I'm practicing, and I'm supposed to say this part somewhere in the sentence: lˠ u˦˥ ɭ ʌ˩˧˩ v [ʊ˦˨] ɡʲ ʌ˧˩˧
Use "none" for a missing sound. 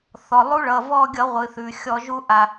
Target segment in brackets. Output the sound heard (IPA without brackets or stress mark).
ɔ˦˨